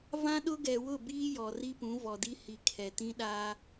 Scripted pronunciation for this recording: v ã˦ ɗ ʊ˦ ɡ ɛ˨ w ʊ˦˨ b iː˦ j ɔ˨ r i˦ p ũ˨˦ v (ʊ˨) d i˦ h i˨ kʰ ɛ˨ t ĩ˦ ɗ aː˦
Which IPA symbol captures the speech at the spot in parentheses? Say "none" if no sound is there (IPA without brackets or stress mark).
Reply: ɔ˨